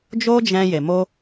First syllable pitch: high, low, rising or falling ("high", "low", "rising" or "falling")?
high